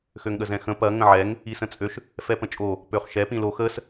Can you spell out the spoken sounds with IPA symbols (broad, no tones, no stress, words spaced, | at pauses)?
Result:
xøŋɠəzɛ̃xə̃ pɐ ŋə̃ʕɛŋ | isə̃t͡sʼøʃ | fɛpə̃t͡ʃʼo | pøχʃɛ pĩlo xəs